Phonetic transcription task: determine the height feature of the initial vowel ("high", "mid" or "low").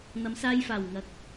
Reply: low